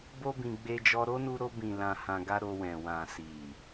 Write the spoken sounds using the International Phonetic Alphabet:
bo˦bĩ˧ ɡ͡be˧d͡ʒɔ˧ɾo˦nu˧ ɾo˧bĩ˨ lã˧hã˧ɡa˦ ɾo˧wɛ̃˨ wã˨si˨

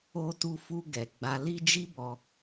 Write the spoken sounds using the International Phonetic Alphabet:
o˧tu˧fu˧ ɡɛ˨ɡ͡ba˧li˦ d͡ʒi˦bɔ˧

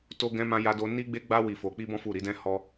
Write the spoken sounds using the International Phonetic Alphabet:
to˦ɡɛ̃˦mã˦ ja˧do˧ ni˦ɡ͡be˦ɡ͡ba˦ wi˧fo˧k͡pi˦bɔ̃˦ fu˦˨ ɾi˨˦dɛ̃˦hɔ˦

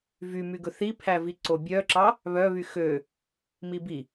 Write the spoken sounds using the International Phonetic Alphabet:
vymyɡɵ θipʰævi ǀobʲœǁɑ | βœβy xø | mibi

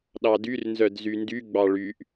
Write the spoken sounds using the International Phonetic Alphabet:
ɗɑdyr nzœdzyndy ɡ͡bɑɭyʔ

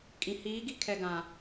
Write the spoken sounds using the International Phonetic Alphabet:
kʼĩ˨ hiː˨˦ɡi˦kʰɛ˨ɡã˨

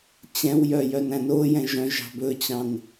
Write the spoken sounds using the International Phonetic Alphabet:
t͡ɕɛ̃wjœ jœnæ̃nojɛ̃ ʒœ̃ ʒɑ̤bɵt͡ɕɑ̃n

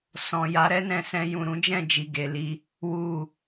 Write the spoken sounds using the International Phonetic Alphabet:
sɔ̃˨ ja˨˦ɾɛ˦nɛ̃˧sɛ̃˧ jũ˨ɾũ˨˦d͡ʒɛ̃˦˨d͡ʒi˨ ɡe˨˦li˦ | wu˨

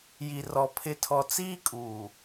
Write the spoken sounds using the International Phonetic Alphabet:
ji˨rɔ˨ pʰɪ˨tʰɔ˨ t͡siː˦kʼuː˨

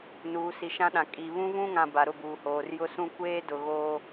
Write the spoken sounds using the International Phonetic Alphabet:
nuː˨si˨ʃã˦ɗã˨ kʼi˨ βũ˦vũ˦ŋã˨ ba˨ɾʊ˦˨buː˨hoː˨r jʊ˦sũ˦ kʷeː˦dʊ˨ɣoː˦

